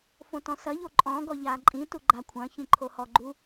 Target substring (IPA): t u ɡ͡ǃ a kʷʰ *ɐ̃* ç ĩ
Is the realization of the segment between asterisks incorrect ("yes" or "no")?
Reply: no